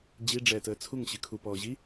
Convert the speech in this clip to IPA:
d͡ʑ i ɖ͡ʐ ɛː t əː t͡sʰ u ŋ ɕ ɨ kʰ u p ɔː ʑ i

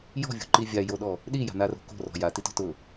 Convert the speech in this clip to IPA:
j ɔ̤ vʲ o̤ ǃ i vʲ a j o ɗ ɔ | ɗ i j a̤ n a r o̤ k o̤ r ɔ̤ j a t i t ɔ̤ t ʊ

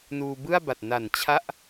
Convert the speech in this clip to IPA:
n uː˧ b ɯ˥˩ a̯ b a˨˩ t̚ n a˨˩ n t͡ɕʰ a˥˩ ʔ

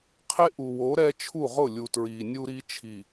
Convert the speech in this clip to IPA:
qʰ e˦ ʔ u˨ w o˨˦ ɾ ɛ˦ t͡ʃʰ u˦˨ ʁ ʊ˦˨ lʲ u˨ t ɹ iː˨ nʲ u˦ ɾ i˦ t͡ʃʰ i˨

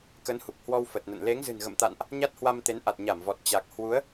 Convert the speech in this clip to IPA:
k ə˨˦ n h u˨˩ k̚ h w ɔ˧ w f ə˨˩ t̚ n ə̰˧˨ n l e˨˦ ŋ z ɨ̤˨˩ n ɣ ə̰˧˨ m t̪ a̰˧˨ n ʔ | ɲ a˦˥ t̚ h w a˧ m t̪ e˨˦ n ʔ a˨˩ t̚ ɲ a˧˩ m v ɔ˨˩ t̚ t͡ɕ a˨˩ k̚ h w u˨˦ ə̯

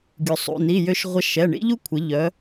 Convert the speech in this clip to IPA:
ɡʲ u˩ sˤ ṵ˩˧˩ n i˩˧˩ j ø˧ ʃ ʁʷ ɐ˧ ʃ ɛ˩˧˩ ɳ ḭ˥ ʎ u˥ kʷʰ ɪ˩˧ ʎ œ˩˧

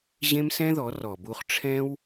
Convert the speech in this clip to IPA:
ʑ ẽ˦ m s ɛ̃˦ ð ɔ˨˦ r ɔ˨ b u˧ χ ʈ͡ʂʰ ɛ̃˦ w

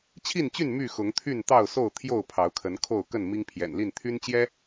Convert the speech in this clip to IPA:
t͡ɕʰ i˥˨ n t͡ɕ y˥˨ n m y˥˨ x ʊ˨˦ ŋ t̪ʰ y˥˨ n t̪ ɑ˥˨ ʊ̯ s o˥˨ ʊ̯ t̪ʰ j o˥˨ ʊ̯ pʰ ɑ˨˦ ʊ̯ kʰ ə˨˦ n kʰ o˥˨ ʊ̯ k ə˥˨ n m i˦ ŋ pʰ j ɛ̰˨˩ n l i˥˨ n t̪ʰ y˦ n t͡ɕ j ɛ˦

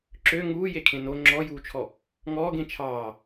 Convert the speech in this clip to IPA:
ǁ ø ŋ uː j e kʰ ẽ n o ŋ͡ǁ ɔ j uː t͡ʃʰ ɔ | ŋ ɔː ɡ ẽ t͡ʃʰ ɑː

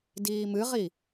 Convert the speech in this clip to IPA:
d iː m ɨ ʁ i

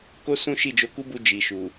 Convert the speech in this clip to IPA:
k o˦ s ũ˦ ʃ i˦˨ d͡ʒ o˧ k u˦ b u˧ d͡ʒ i˨ ʃ u˨

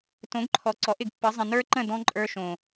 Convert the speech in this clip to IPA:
t õ˨˦ ɡ ǃʰ ɔ˨ ǀ ɔ˨˦ ʔ ɪ˨ ɡ pː ə˨˦ zˤ ə̃˨ n ə˞˦ ǃ ə̃˦˨ d ɔ̃˦ ǃʼ ə˞˧ ʃ õ˨

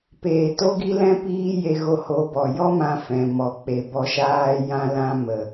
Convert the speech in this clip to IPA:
p eː˨ t o˦ ɡ i˦ l ɛ̃˦ p iː˦ j e˧ ɣ o˧ h o˨˦ b ɔ˨ j ɔ˦ m ã˧ f ɛ̃˨ m ɔ˨ k͡p e˨ b ɔ˧ ʃ aː˦ j ã˦ l ã˦ m ə˨

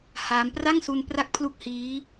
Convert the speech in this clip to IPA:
h aː˦˥ m p r a˥˩ ŋ s u˧ n p r a˦˥ k̚ pʰ l u˦˥ k̚ h iː˦˥

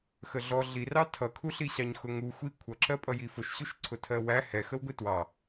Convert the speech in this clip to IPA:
x ə ɮ ɔ ɮ i r ɑ tʰ ʌ kʰ u ɬ i ɕ ɑ ɲ x ʊ ŋ u xʷ i kʷʰ ʌ ǁ ɜ pʼ ʌ j i f ʊ ʃ ɕ u ʃ ǀʰ ʊ tʰ ɜ w æ h ɛ x ə w ɡʷ i t w ɑ

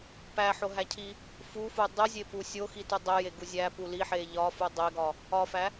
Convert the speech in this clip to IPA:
p æ ħ o ɦ æ cʰ i | f u f u dˤ u zʲ e p u sʲ o x i t u dˤ e j e ɡ u zʲ æ p u l i ħ e ʎ ɒ f u dˤ e ɡ ɒ | ɒ f æ

